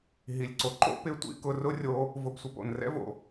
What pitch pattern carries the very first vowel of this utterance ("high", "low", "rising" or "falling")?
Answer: low